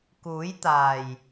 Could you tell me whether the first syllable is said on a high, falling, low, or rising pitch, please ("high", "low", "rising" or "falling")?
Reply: rising